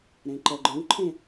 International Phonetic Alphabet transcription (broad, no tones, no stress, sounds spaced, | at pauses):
ɾ ẽ ǃ œ ɡ͡ǃ œ̃ w ǃʰ ẽ